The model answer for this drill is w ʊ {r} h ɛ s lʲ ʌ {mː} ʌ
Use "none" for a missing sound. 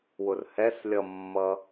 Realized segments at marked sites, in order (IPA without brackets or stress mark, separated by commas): r, mː